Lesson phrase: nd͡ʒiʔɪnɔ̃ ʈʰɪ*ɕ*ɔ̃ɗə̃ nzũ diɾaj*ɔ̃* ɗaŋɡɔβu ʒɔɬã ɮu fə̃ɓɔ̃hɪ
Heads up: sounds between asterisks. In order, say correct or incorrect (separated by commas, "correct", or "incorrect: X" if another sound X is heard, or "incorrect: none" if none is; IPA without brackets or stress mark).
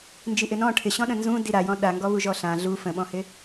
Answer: correct, correct